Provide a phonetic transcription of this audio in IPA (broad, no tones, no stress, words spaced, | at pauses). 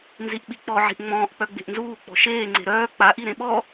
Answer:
nziʔɓik͡pɔ ʕi̤ʔŋ͡mɔ̃ːʔ k͡pœɡ͡be̤ʔnzuː k͡pɔ̤ʃeː ŋ͡ǀe̤ɾœː k͡paʔi ɾẽɓɔ